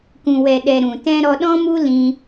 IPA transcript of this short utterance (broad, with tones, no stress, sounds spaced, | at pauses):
k ũ˨ w ɛ˨ ɗ ɛ˨ ɾ ũ˨ t ɛ̃˦ ɾ ɔ˧ ɗ ɔ̃˦ m u˦ l ĩ˧